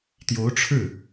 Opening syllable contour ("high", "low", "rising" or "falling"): rising